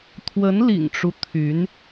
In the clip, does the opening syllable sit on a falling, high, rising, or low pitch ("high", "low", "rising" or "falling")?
rising